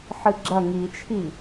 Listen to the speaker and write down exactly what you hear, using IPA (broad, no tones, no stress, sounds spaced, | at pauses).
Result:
ħ ɨ ɡ͡ǁ ɐ ŋ i t͡ʃʰ i